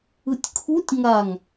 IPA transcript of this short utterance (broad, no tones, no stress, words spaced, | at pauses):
ɯtʲkʰutʲ ŋaŋ